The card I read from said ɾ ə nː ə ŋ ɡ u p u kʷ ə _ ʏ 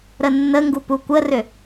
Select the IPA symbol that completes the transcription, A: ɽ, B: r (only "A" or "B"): B